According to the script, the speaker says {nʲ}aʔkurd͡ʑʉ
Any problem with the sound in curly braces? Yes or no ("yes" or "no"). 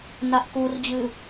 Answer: yes